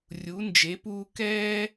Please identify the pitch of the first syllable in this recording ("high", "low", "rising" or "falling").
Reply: rising